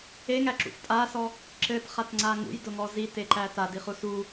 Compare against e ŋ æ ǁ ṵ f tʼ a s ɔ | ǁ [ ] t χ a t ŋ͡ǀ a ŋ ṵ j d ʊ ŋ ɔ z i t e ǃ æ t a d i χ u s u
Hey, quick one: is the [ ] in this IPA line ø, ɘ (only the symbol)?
ɘ